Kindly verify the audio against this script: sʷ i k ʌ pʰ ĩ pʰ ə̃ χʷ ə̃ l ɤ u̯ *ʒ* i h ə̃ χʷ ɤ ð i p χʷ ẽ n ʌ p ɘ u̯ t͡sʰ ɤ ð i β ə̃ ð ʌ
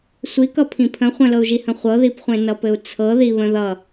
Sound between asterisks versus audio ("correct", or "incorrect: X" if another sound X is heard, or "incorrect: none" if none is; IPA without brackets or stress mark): correct